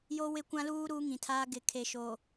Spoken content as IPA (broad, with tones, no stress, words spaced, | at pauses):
jo˦wɪ˦kʷã˦luː˦ ɾuː˦ŋĩ˨tʰaː˦ ɡɪ˨kʰe˨ʃo˨